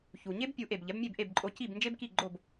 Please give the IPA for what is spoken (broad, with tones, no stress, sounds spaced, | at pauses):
ç u˩ ɲ e˥ b pʲ u˩˥ ʔ e˩ b ʎ ɛ˩˥ b mʲ e˥˩ b ʔ e˥˩ b ǃʼ o˧ c i˥˩ b n d͡ʒ e˥ b k i˥˩ ɡ͡ǃ o˥˩ b